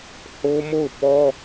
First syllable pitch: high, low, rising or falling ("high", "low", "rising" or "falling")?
high